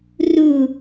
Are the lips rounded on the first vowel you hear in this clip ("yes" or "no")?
yes